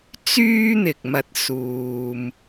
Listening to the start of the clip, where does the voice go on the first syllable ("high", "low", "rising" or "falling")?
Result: high